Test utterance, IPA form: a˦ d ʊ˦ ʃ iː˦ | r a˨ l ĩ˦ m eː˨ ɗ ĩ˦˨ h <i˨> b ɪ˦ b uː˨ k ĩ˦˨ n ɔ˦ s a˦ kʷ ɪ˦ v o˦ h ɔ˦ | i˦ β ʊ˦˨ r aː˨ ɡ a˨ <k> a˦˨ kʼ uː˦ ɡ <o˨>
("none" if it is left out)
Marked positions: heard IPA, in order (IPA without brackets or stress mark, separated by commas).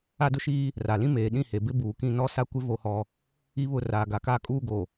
e˨, k, o˨